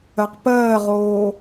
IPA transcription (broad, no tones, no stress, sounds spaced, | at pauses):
ɜ q p ɜː ʁ oː